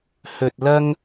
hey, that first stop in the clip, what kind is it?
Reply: plain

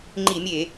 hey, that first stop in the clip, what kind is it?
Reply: click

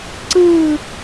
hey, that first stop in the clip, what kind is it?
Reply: click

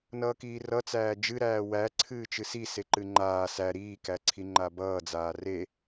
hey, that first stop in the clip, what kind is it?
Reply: plain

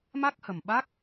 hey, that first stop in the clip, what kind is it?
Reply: plain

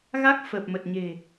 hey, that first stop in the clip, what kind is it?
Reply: plain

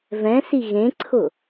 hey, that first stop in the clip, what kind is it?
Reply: click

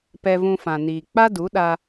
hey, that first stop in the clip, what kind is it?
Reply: plain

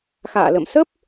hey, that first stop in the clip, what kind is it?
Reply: plain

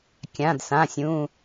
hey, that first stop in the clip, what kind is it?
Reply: plain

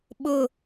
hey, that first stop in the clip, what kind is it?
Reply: implosive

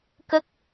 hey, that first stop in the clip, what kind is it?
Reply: plain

